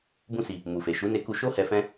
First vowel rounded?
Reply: yes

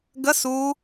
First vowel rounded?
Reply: no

